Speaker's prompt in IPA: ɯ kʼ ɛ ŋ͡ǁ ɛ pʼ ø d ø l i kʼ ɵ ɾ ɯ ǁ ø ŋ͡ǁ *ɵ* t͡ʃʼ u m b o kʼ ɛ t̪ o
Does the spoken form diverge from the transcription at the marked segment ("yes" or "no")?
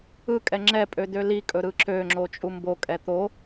yes